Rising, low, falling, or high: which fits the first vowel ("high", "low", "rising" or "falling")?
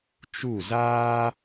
falling